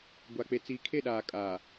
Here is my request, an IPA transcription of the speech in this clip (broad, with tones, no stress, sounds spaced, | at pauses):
ɡʷ a˨ k͡p e˨ t͡s iː˨ kʰ e˦˨ ɗ aː˨ kʼ aː˨